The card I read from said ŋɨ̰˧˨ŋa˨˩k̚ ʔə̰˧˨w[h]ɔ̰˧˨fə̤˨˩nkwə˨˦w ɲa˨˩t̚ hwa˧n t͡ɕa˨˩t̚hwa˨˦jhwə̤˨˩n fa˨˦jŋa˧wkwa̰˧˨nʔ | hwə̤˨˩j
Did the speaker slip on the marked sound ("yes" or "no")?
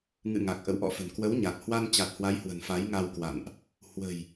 yes